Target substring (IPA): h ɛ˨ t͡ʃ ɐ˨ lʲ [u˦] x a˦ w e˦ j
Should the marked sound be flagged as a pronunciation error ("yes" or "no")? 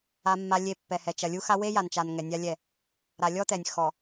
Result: no